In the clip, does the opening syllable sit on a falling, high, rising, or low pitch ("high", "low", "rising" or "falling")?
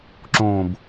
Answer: falling